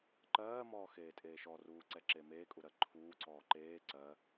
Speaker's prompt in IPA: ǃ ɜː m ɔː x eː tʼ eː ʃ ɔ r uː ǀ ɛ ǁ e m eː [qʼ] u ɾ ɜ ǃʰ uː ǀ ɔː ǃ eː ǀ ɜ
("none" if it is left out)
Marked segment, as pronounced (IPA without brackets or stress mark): kʼ